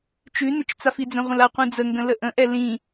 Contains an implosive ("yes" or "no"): no